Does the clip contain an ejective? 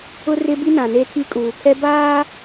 yes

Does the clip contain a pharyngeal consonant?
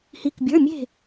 no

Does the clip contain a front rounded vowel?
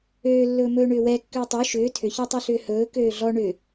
yes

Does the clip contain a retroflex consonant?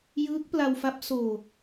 no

